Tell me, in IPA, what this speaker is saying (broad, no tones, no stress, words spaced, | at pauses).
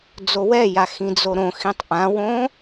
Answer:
d͡zowɛja xĩd͡zoɾõxĩtˤ ʔãwõ